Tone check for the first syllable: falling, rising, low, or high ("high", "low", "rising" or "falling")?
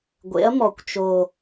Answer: rising